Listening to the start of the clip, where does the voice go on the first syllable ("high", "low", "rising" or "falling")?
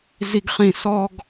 high